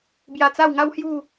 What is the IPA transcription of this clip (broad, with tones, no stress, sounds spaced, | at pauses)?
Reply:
b j a˧ t͡s a˥˧ w ŋ a˦ w h j u˥˧